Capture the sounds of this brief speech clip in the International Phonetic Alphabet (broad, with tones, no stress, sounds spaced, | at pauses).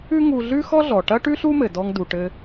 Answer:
ʉ˥ ŋ u˧ ɮ ʉ˥ x ɔ˥ ɮ ɔ˩ ʈ ɐ˥ ʈ ʉ˥ ɬ u˥ m ɘ˩ d ɔ˧ ŋ d u˩ ʈ ɘ˧